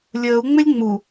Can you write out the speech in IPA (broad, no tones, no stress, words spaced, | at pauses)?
lʲəːu̯ŋ͡mɪlʲ ŋ͡mu